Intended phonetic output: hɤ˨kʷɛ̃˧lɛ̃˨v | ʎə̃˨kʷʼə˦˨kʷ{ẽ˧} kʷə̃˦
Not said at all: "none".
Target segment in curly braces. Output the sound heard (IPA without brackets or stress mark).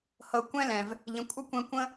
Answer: ẽ˧